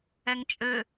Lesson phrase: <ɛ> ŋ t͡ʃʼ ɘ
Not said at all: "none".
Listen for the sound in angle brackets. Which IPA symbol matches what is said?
ɛ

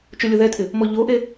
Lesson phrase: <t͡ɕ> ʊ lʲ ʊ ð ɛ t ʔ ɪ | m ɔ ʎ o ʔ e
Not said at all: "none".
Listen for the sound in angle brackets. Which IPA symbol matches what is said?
t͡ʃ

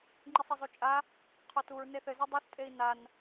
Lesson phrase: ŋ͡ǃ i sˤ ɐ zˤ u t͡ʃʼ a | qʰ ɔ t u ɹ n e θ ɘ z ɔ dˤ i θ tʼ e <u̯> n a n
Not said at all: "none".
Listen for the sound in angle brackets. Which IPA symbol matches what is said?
i̯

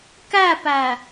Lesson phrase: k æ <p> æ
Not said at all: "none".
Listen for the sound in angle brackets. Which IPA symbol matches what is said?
p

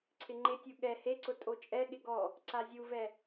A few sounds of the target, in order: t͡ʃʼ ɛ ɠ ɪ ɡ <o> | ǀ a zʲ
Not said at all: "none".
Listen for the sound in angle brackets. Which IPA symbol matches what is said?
ɔ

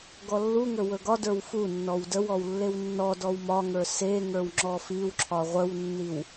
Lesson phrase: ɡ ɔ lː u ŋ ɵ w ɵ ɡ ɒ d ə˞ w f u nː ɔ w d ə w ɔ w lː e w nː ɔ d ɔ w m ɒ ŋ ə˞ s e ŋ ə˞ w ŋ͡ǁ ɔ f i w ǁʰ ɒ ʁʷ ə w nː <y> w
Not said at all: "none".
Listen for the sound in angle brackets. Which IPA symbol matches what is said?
i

